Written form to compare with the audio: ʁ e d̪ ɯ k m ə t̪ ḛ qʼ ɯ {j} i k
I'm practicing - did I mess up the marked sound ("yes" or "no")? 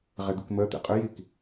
no